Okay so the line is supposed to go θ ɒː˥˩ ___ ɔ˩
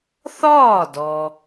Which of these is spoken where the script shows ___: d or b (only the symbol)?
d